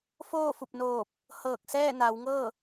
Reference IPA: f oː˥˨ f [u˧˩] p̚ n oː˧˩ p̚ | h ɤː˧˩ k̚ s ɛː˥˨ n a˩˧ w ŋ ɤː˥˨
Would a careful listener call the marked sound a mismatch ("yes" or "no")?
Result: no